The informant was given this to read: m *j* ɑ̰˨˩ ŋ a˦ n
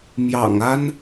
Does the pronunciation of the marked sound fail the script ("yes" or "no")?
no